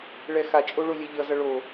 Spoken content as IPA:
ɭ ɛ x a t͡ʃʼ o ɭ o lʲ ɛ ʎ ʌ z ʌ ɭ o

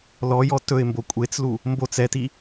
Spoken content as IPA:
l ɔ j ɔ t ɵ ɪ̯ m b o kʷʼ e t͡s l u | m b o t͡s ɛ t i

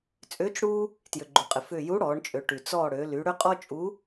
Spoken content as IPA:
t͡sʼ ʏː˨˥ t͡ʃ ɽ uː˦ | t j ʏ˩ ɡ͡ǃ u˩ qʼ ɪ˩ f ʏː˧˩ j u˨˥ ɽ ɔː˩˧ ɳ t͡ʃʼ ø˩˧ ʈ y˩ t͡s ɔː˧˩ ɽ ø˩˧ l y˩˧ ɽ ʏ˦ qʼ ɔ˦ t͡ʃʼ u˨˥

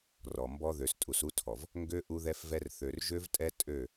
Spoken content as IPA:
r ɔ˨ m b ɔ˦ ð ø˨ s tʼ u˨ s u˦ tʰ ɔ˨ v | ŋ ɡ ø˦ ʔ u˦ ð ɛ˦ f v ɛ˦ r θ ø˨ r ʒ ø˦ v tʼ ɛ˦ tʼ ø˦˨

